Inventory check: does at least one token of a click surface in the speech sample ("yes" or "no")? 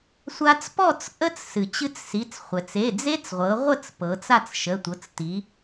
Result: no